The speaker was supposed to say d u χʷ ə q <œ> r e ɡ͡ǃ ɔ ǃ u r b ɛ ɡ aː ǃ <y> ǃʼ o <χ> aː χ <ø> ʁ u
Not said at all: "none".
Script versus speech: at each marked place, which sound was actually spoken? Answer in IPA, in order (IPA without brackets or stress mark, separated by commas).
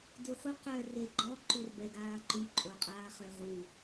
œ, y, qʼ, ø